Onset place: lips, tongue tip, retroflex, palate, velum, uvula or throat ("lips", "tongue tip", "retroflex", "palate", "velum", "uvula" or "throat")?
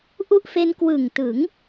throat